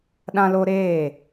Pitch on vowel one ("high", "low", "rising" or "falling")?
high